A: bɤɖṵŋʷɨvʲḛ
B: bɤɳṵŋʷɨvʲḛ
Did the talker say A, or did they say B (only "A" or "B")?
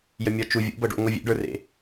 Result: A